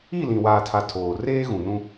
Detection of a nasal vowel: present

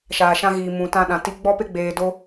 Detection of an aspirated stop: absent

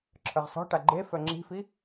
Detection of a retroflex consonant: present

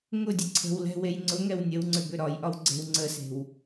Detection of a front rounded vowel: present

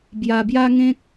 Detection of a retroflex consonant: absent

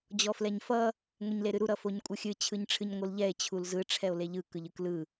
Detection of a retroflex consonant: present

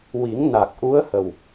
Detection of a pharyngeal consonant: absent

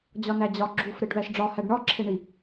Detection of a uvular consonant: absent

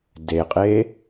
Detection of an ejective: present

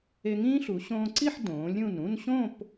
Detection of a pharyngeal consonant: present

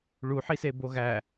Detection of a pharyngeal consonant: present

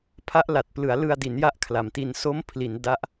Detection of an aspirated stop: present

